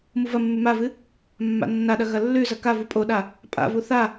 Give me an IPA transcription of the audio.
muvɐmːʉ mavɨ | mːa̰nːaɗɐ ɣɐlːʉzɐ kavu pʼoɗa | pʼa̰vu θa

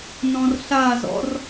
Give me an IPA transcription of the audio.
nɔ̃rɬazɔ̰r

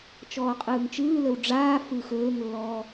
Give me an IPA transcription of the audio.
t͡ʃɔːqʼɯːŋt͡ʃɯːləw ɖ͡ʐaː fɯxɵːŋlːɔː

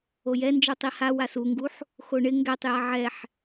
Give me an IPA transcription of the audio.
ojɛ nd͡ʒotˤiha wasuŋɡuħ | xoɳɪ ŋɡɛtˤja ʕɛħ

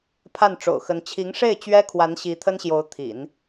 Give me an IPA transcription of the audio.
pʰa˥˩nʈ͡ʂo̰˨˩ʊ̯xə˧˥n t͡ɕʰi˧˥ŋʂe˥˩ɪ̯t͡ɕɥɛ˥ kʰwa˧˥nɕi˧˥t̪ʰə˥nɕjo˧˥ʊ̯ t̪ʰḭ˨˩˦n

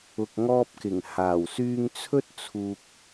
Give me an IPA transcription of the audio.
ʊ˨k̚ŋɔː˧p̚kɪ˨˩ŋ haː˨˩wsyː˧ŋt͡sʰɵ˥t̚ t͡sʰuː˧k̚

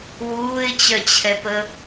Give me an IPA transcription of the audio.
wuːɪ̯t͡ɕœt͡ɕʰɛpə

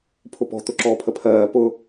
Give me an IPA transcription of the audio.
pʰʊpɔ̤ t̪ʊǁɔːpʰəpʰɜː pʊ

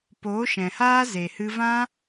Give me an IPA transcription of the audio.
poː˨˦ʃɛ̃˨haː˦ ze˨hɨ˧vã˦

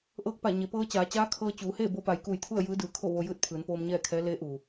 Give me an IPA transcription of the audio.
ʔɤː˧k̚pa˧˩ ɲe˩˧ pɤː˧t͡ɕaː˩˧t͡ɕaː˧˥kʰɤː˧ t͡ɕuː˩˧heː˥˨ bo˧pa˩˧jkuː˧˩jt̪ʰu˥˨ə̯ jɯː˧˥dɯː˩kʰo˥˨ʋo˧ jɯː˥˨t̚pʰɯː˩˧n poː˧mɲɛː˥˨kʰɛː˧˥ leː˧˥ʔuː˩

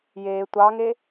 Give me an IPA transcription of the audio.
jeː tʷɑŋe

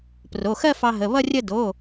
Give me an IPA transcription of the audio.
pro˩˧˩xɜ˥˧ fɑ˧ɦə˩˧˩ βʌ˥˧ rʲə˥˧ do˩˧˩

